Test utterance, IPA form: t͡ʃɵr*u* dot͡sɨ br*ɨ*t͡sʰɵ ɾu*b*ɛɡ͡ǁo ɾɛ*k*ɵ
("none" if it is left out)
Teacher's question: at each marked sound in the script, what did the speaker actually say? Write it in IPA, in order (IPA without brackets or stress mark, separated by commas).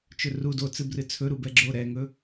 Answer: u, ɨ, b, ŋ